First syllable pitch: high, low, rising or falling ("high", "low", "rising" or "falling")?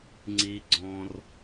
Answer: high